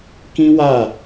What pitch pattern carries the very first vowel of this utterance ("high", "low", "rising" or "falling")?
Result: high